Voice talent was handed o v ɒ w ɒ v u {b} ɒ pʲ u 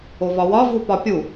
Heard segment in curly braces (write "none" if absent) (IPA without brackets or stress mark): p